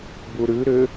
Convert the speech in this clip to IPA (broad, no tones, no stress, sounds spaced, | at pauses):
b u ɾ ʉ ɾ ʏ